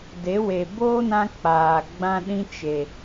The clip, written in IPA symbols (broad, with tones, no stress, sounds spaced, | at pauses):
d e˨˦ w e˨ b oː˦ n ã˧ k͡p aː˨ ɡ͡b ã˦ ɗ ĩ˦ t͡ʃ e˨